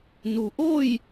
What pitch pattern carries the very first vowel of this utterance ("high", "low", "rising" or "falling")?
low